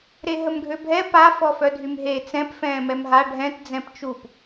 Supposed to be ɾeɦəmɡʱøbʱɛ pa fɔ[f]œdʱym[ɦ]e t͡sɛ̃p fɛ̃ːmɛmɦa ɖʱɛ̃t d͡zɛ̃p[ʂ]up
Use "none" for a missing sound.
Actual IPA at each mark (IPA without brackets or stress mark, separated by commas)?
f, ɦ, t͡ʃ